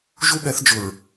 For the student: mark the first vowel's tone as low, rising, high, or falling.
high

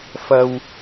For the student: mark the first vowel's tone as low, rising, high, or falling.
low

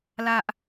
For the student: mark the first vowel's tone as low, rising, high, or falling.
high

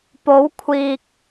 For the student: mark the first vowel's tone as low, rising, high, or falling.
rising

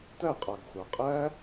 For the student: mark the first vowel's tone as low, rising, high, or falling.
falling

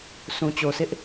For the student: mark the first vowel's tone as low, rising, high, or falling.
low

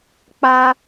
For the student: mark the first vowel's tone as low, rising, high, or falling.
high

